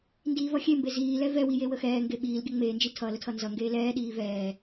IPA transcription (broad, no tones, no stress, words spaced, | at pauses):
ndiːvʌxʲembe ziːlɛ vɛwi jewəxɛːŋɡe ɓiːlɡʲə ŋ͡meːnd͡ʒi tʰʌ lətʰʌnzʌŋɡeː lɛːɗiː vɛː